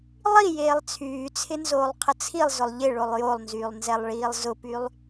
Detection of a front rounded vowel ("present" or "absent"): present